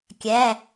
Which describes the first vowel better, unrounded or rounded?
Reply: unrounded